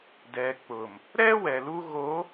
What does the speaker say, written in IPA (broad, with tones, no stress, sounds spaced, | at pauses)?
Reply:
d ɛ˨ k͡p ʊ˨ m | ɾ ɛ˦ w ɛ˨ l u˦ ɣ o˨˦